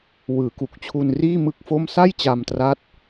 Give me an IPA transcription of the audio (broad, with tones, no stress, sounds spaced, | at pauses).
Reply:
w ɯː˩˦ k u˨˩ k̚ t͡ɕʰ u˧ n r iː˥˩ m ɯ˥˩ k̚ f o˥˩ m s a˥˩ j t͡ɕ a˧ m t r a˦˥ t̚